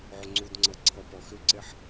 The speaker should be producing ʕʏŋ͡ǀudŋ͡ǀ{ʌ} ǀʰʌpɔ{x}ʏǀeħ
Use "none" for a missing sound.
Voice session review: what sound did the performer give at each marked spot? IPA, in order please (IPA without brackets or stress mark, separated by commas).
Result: ʌ, x